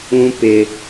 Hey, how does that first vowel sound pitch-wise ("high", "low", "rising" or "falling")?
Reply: high